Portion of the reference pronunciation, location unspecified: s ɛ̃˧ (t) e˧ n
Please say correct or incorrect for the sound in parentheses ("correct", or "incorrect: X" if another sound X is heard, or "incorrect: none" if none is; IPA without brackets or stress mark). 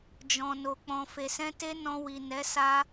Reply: correct